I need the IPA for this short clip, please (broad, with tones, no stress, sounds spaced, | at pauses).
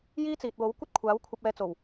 j iː˥ t͡s iː˨ t̚ w o˨˥ w kʷ ɐ˥ t̚ kʷʰ aː˨˥ w kʷʰ ɐ˧ p̚ ɛː˧ t͡s o˨˩ w